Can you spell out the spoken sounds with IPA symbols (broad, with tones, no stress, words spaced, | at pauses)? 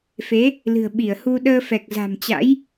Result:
fe˨˦ | lɨ̤˨˩ə̯ɓi˧˩ə̯hu˧ ɗəː˧fɛ˨˩k̚za̤˨˩mt͡ɕa̰˧˥j